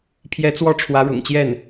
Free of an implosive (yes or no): yes